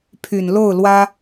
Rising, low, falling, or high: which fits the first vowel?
low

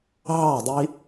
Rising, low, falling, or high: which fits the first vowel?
falling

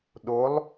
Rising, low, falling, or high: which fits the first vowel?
rising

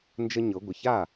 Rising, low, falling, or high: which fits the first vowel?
high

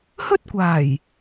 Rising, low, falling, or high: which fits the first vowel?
high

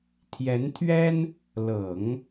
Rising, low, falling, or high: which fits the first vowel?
rising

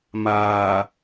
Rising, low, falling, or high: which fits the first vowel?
low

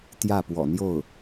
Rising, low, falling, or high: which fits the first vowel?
falling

